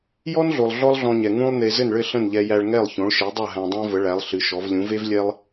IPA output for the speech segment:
j ɔ˥ n ɮ o˩ lˠ ɮ ɔ˥ lˠ ɮ ɔ̃˧ ɲ ɛ˩ ŋ ũ˥ lˠ n e˧ z ɘ˥˩ n ɭ ɘ˥˩ ɬ ə̃˥˩ n ʎ ɛ˧ j æ˧ ɭ ŋ ɛ˥˩ lˠ ç õ˩˥ ɭ ʃ e˩˥ dˤ ʌ˥˩ ɦ æ̃˧ dˤ æ̃˥ v ə˩˥ ɭ æ˩˥ lˠ ɬ ɨ˩˥ ʃ ɔ˩˥ v lʲ ũ˩˥ v e˥ v lʲ ɛ˥ lˠ

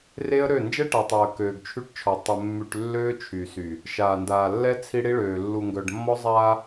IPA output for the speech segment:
r e˦ ə̯ ɾ ø˦˨ n d͡ʒ ɛ˦ ʈ a˨ tˤ a˨ ə̯ k øː˨ ɡ t͡ʃʰ y˦ ʈ t͡ʃʰ ɔ˨ tˤ ə˨ mː y˨ ʈ lː øː˦ t͡ʃʰ y˨ s y˨ | ʃ aː˨ n d aː˨ lː ɛ˦ t͡sʰ i˦ ɽ i˦ ɭ øː˨ lː u˨ ŋ ɡ œ˨ ɖ mː ɔ˦ zˤ aː˦

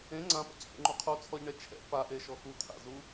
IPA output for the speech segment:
ẽ ŋ͡ǀ ã p a̰ c h ḛ ŋ͡ǃ u qʰ u t͡sʰ ɔ ʎ ɳ ɛ t͡ʃʰ ɛ̰ p a ʔ e ʃ ɔ x u t̪ʰ a̰ z u

